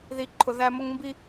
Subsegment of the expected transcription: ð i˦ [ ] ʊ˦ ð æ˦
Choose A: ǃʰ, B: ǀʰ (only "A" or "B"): A